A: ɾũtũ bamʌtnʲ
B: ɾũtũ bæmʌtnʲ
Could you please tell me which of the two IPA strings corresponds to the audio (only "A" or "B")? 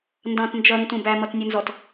B